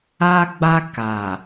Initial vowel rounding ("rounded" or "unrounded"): unrounded